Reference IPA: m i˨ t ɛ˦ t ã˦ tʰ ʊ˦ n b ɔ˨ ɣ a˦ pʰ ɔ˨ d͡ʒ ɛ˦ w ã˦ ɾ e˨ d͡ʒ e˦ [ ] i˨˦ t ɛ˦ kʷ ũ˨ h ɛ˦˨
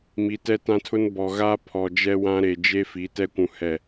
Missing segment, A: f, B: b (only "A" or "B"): A